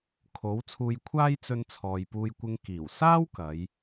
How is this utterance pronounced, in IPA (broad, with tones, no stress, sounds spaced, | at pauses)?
kʰ o˨˥ w t͡sʰ uː˧ j kʷʰ aː˥ j t͡s ɵ˧ n t͡sʰ ɔː˨ j p uː˧ j kʷ ɪ˧ ŋ k iː˨˩ w s aː˥ w k ɐ˨˥ j